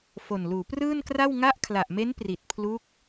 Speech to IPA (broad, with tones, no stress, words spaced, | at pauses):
fo˨˩nluː˩˦prɯː˥˩nkra˥˩w ŋa˦˥ʔkʰla˨˩ʔme˦˥n pri˨˩t̚pʰlu˦˥k̚